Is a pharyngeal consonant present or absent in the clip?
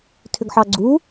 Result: present